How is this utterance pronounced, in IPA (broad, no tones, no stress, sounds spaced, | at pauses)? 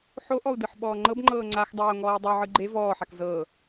ħ o ʔ ɔ u̯ d ɯ ħ ɓ ɔː ŋ͡ǃ ɤ b ŋ͡ǃ ɤː ŋ͡ǀ a x dˤ oː ŋ ɔː y̯ dˤ o ʕ ɯ ɡ͡ǃ e v ɔː ħ a k z ɤː